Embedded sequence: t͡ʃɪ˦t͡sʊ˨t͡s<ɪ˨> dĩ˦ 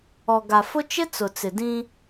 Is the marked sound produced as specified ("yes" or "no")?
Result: yes